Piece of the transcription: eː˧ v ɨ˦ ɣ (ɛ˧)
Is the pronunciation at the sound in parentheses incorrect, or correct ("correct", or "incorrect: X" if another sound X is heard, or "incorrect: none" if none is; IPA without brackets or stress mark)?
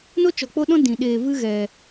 correct